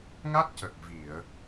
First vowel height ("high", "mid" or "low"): low